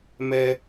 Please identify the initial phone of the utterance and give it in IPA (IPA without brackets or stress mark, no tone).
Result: m